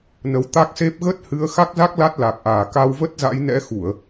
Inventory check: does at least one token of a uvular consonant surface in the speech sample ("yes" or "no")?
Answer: no